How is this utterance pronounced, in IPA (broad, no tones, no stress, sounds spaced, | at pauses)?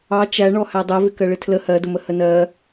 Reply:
ɑ t͡ʃ æ ɳ ɔ h æ dˤ ɜ v ɪ k ɜ ɭ ɪ tʰ l ə h ɜ d ʊ m ə h ə n ɜ